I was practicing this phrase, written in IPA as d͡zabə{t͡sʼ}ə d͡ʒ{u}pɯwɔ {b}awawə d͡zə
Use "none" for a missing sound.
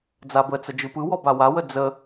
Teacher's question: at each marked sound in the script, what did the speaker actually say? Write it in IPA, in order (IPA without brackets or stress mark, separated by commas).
t͡s, ɯ, b